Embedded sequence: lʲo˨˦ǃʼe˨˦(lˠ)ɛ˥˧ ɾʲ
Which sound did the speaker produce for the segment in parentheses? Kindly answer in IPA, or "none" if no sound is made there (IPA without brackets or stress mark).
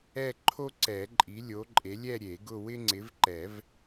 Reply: lʲ